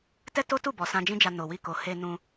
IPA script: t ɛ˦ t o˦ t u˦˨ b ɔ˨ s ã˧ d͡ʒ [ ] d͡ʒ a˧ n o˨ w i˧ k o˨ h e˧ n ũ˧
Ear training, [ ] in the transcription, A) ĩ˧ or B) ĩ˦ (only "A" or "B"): B